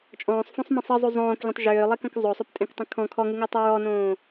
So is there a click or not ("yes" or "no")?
no